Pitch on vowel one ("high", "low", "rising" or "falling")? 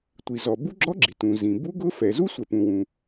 low